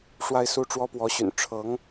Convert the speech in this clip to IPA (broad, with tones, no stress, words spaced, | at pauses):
ʂwa˥˧ɪ̯su˥˩ʈ͡ʂwɔ˥ pwɔ˧˥ɕy̰˨˩n ʈ͡ʂʰɤ˧˥ŋ